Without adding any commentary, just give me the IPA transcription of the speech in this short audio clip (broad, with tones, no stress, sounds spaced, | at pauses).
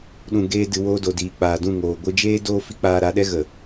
ɗ ũ˨ ɡ eː˧ d ɨ˨ w oː˧ d o˨ d iː˨ k͡p aː˨ d ũ˦˨ ŋ oː˨ ɡʷ ɨ˧ d͡ʒ eː˦ d oː˦ f i˦ k͡p aː˧ ɾ a˨˦ ɗ ɛ˦ ɣ ə˨